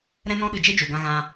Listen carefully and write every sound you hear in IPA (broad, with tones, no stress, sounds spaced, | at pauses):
ɾ ɛ̃˧ n ɔ̃˧ ɗ ɨ˨ d͡ʒ e˦ d͡ʒ u˨ ɡ ã˧ ɣ ã˦